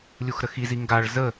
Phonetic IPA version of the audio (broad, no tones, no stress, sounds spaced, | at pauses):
lʲ u x ɾ ə x i z i ŋ ɡ a ɭ z ə